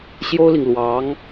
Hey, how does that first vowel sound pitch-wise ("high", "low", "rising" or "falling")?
high